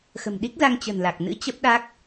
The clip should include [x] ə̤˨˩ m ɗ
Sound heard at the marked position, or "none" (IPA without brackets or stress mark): x